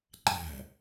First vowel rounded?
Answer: no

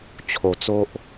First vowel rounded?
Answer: yes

